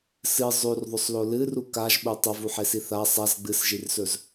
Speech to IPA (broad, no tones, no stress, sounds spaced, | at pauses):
s ɨ zˤ ʉ r ðˤ ɵ sˤ l o l ɨ r u k a ʒ ɓ u tˤ ɐ v u ħ e s i θ a sˤ a z ɡ͡b ɨ s ʒ i r s ɵ z